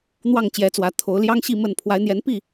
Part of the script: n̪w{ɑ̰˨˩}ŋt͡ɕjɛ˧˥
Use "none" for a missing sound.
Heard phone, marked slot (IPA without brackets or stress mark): ɑ˥˩